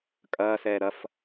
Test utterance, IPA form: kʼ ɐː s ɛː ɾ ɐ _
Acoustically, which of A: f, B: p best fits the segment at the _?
A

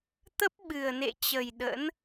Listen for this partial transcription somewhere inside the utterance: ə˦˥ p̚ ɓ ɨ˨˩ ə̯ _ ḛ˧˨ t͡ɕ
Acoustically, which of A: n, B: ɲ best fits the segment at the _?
A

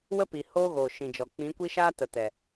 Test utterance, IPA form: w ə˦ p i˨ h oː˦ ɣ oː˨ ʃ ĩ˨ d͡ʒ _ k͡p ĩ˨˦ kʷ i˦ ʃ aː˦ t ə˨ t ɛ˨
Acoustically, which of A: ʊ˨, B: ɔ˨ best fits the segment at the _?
B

